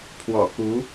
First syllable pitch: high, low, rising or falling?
low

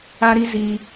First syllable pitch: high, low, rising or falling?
high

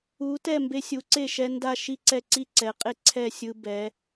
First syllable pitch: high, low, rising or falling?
rising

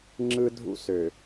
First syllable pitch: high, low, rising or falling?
high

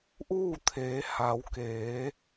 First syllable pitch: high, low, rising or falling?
falling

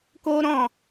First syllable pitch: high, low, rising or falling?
high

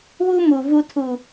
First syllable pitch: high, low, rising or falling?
high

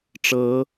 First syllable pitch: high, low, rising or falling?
rising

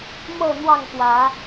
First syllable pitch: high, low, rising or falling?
falling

